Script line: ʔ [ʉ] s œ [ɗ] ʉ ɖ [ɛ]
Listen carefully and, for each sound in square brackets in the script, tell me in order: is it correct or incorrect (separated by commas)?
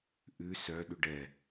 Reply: correct, correct, correct